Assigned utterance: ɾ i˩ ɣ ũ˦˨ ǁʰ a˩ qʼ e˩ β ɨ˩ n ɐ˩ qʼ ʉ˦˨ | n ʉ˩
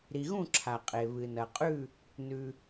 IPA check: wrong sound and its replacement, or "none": none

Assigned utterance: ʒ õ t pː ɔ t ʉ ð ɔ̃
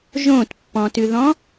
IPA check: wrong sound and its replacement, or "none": ɔ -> ɔ̃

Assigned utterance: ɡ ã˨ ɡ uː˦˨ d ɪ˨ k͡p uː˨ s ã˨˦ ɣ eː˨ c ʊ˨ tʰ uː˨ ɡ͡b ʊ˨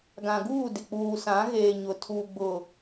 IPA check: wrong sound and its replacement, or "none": c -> ɲ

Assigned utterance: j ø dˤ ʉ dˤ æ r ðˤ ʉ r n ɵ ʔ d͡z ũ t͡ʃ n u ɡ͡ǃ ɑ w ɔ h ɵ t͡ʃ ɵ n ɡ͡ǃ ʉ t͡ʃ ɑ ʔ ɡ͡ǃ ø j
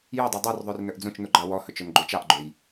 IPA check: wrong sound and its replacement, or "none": æ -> œ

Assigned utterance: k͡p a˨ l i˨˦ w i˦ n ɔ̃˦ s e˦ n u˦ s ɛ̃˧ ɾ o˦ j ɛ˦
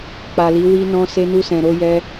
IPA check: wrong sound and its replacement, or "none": none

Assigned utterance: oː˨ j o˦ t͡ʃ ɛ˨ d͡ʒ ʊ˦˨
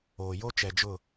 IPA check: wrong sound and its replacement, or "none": none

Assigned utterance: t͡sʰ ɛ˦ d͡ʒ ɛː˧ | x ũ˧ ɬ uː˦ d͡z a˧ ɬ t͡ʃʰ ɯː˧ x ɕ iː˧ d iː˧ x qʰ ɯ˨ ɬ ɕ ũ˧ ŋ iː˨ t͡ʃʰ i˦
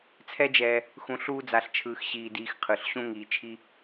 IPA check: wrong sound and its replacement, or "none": none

